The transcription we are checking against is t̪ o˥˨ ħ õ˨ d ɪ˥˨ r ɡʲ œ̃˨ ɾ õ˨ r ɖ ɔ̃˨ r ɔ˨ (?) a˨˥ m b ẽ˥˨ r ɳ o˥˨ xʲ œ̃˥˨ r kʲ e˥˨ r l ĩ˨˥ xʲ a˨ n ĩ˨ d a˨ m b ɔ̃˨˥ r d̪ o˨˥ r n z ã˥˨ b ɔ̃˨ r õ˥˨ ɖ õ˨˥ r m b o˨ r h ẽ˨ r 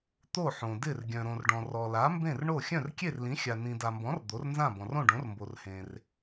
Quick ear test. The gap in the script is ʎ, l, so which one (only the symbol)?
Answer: l